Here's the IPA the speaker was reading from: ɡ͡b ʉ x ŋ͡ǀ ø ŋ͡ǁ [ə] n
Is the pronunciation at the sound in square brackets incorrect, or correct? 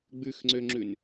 incorrect